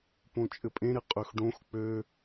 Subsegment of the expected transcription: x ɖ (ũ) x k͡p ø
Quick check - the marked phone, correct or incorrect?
incorrect